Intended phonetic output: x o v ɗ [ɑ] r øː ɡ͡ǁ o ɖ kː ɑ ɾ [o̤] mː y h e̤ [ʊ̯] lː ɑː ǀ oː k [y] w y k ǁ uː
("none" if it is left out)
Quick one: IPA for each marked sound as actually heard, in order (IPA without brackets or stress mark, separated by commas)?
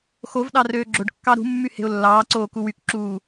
ɑ, ṳ, ʊ̯, u